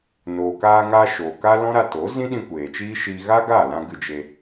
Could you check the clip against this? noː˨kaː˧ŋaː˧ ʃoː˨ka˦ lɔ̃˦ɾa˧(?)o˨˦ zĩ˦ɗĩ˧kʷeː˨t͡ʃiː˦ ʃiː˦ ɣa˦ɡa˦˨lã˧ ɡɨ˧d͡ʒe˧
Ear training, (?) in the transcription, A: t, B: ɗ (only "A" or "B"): A